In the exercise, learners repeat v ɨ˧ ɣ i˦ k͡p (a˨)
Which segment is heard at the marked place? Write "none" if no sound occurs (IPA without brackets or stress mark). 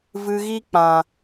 ã˨